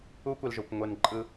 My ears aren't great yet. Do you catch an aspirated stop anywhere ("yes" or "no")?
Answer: no